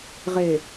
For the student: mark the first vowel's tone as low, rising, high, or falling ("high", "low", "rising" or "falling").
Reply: low